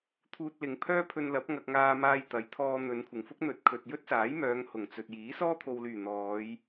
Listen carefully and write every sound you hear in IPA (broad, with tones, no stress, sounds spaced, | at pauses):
t̪ʰ uː˧ t̚ l ɪ˨˧ ŋ pʰ œː˥ pʰ ɵ˧ n l ɐ˨˥ p̚ ŋ ɐ˧ k̚ ŋ aː˧ m aː˧ j t̪ ɐ˨˥ j t̪ʰ ɔː˧ n̪ ɵ˨˧ n kʷʰ ɪ˨˩ ŋ f ʊ˥ k̚ n̪ ɵ˨˥ t̚ kʰ ɵ˨ t̚ j ɵ˥ t̚ s aː˨˥ j m œː˨˧ ŋ h ʊ˨˩ ŋ t͡s ɵ˨ t̚ j iː˨˥ s ɔː˥ t̪ʰ o˨ w l yː˨˩ n̪ ɔː˨˧ j